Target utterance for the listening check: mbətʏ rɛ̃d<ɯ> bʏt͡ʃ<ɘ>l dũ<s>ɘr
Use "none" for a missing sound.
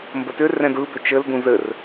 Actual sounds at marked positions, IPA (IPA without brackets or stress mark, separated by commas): ɯ, ɘ, z